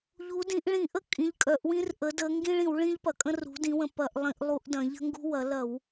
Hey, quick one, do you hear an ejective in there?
yes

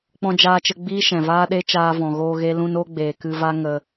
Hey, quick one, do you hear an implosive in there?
yes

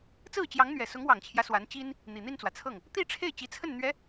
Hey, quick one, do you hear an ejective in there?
no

